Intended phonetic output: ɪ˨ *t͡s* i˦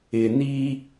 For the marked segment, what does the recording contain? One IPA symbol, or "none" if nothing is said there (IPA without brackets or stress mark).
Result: n